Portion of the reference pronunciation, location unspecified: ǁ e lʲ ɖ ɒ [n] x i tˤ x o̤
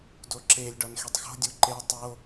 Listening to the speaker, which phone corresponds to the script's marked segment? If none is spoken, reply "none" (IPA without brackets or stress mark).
n